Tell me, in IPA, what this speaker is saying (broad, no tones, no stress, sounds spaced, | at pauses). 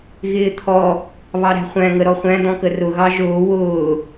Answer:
ɣ ɪː t̪ʰ ɔ | β ɑ ɾ æ̤ χʷ æ̃ ŋ ə ɾ ɔ χʷ æ̃ d̪ ɔ̃ k ə r ʊ ɣ ɑ ʒ ʊː w ʊː